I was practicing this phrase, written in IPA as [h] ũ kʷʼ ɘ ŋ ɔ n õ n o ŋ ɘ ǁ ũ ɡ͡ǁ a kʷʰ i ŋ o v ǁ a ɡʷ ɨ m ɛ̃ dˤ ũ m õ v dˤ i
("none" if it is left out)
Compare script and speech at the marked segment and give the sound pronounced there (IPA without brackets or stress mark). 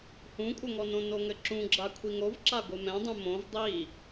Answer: h